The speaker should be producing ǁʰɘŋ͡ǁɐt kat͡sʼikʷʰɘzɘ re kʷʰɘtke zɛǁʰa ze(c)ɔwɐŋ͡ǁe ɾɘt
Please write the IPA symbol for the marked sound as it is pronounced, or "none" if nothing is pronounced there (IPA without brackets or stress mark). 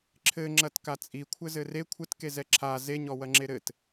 ɲ